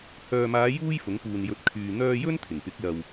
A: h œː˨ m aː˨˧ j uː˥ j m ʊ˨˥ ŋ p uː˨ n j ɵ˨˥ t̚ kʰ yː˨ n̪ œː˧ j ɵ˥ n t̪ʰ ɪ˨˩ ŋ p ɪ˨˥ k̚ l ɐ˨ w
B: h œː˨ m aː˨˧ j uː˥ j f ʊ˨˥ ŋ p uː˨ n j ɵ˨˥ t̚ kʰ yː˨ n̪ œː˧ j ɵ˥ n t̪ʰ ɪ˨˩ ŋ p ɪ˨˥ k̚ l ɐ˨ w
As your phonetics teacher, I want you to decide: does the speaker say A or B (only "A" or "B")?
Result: B